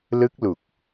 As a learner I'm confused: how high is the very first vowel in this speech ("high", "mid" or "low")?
high